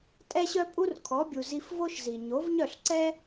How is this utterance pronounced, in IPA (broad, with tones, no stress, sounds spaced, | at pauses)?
tʼ ɛ˥ ɕ œ˥ pʼ u˥ r kʰ ɔ˩˥ bʲ u˩ z i˧ f v o˥ ʃ z i˩ ɲ o˩˥ v ɲ œ˥˩ ɬ ǀ ɛ˥